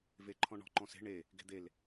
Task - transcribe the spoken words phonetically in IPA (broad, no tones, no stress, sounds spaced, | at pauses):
v e ǃʰ ɔ̃ ɳ ɔ̤ ǃ ɔ̃ s e̤ ɳ e | ɡ e̤ d̪ e l